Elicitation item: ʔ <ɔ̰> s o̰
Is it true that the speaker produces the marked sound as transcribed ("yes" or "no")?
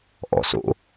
yes